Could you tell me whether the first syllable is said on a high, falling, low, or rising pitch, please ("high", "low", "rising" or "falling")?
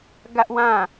high